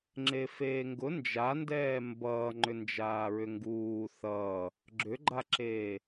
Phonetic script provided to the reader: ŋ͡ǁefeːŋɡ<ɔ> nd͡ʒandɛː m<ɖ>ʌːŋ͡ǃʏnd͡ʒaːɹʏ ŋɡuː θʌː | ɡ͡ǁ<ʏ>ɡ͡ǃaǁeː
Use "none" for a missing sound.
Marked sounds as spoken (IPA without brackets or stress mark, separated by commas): ʊ, b, ʏ